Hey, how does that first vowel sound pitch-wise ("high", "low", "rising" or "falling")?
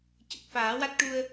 low